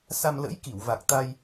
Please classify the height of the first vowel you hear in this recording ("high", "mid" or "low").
low